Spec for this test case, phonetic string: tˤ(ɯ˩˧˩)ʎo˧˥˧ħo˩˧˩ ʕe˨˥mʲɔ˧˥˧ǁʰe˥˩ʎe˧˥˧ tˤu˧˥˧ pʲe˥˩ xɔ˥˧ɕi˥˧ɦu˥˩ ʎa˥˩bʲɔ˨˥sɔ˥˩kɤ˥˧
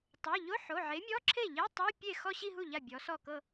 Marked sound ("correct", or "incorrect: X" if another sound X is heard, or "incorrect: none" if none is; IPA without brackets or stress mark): incorrect: ɤ˩˧˩